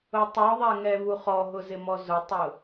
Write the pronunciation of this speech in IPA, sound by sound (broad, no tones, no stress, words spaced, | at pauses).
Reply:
ʊtˤoðˤɛ ŋɛvuχɔɦʊ zɪmɔzʊtˤʊ